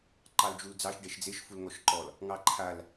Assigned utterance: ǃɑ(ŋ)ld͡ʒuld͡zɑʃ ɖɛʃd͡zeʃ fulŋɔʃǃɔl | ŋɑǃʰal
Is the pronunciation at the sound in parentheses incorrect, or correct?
incorrect